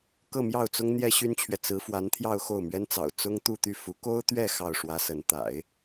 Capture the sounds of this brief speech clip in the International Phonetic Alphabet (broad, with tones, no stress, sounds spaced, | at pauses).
k ɤ˥˧ m j ɑ˥˩ ʊ̯ t͡s ʊ˥ ŋ n̪ j ɛ˥ ɕ y˥ n t͡ɕʰ ɥ ɛ˨ t͡s ɹ̩˧˥ f w a˧˥ n t̪ʰ j ɑ˥˧ ʊ̯ x o˥˩ ʊ̯ m ɥ ɛ˥ n t͡s ɑ̰˨˩ ʊ̯ t͡s ʊ˥ ŋ t̪ u˥˧ t̪ y˥˩ f u˧˥ k o˥ ʊ̯ t̪ ɥ ɛ˥˧ x ɑ˥˩ ʊ̯ ʂ w ä˥ s ə˧˥ n t̪ a̰˨˩˦ ɪ̯